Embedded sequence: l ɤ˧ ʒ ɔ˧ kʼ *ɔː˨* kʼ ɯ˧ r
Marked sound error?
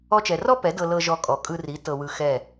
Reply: yes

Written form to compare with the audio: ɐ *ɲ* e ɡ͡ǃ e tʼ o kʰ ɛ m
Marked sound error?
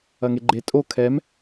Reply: yes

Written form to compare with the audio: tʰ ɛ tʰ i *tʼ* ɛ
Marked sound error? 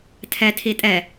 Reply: no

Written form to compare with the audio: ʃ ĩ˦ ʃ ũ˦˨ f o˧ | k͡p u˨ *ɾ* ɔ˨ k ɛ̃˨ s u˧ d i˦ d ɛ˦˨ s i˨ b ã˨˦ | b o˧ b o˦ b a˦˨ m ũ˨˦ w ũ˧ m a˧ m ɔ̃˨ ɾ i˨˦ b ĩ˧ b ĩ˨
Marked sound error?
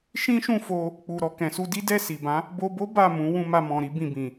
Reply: no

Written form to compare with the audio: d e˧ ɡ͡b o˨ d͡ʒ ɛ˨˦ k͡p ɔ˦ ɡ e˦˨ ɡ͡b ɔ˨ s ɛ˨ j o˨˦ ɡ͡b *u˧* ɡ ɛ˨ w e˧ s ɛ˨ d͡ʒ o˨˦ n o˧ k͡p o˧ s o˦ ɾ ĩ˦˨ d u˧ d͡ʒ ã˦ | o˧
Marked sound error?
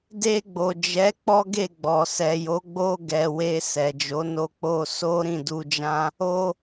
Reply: yes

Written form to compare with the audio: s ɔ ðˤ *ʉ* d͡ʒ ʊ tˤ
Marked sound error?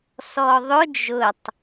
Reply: yes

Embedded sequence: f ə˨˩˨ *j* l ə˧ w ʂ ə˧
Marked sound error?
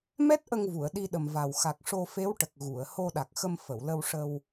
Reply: yes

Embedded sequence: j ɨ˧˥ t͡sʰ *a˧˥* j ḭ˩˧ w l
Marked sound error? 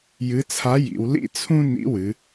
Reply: no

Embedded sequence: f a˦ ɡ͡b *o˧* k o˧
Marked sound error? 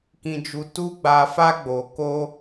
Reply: no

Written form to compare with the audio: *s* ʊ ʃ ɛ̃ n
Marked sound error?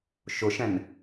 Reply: yes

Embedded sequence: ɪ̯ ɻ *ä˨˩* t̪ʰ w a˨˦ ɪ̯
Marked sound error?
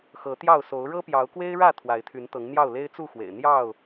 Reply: yes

